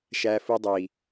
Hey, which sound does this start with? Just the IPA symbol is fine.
ʃ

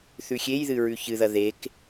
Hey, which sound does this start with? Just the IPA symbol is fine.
θ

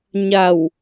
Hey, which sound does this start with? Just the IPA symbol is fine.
ɲ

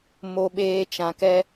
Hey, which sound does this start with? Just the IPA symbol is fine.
m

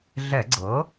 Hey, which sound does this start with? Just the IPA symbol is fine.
ɮ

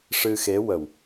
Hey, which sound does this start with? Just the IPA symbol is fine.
ʂ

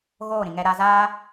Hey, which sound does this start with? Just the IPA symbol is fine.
ɣ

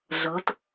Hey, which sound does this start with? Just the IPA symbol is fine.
ɮ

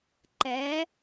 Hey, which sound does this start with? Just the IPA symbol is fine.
ǃ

